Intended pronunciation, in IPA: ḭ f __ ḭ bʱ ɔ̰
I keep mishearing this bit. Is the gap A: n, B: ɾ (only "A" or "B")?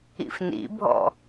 A